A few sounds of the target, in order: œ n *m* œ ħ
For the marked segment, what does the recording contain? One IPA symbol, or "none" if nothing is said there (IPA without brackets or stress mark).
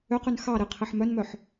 m